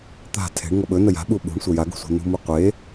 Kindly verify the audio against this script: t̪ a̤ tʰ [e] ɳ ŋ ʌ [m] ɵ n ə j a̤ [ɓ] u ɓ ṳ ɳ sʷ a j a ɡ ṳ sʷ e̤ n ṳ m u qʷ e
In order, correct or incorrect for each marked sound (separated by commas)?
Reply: incorrect, incorrect, correct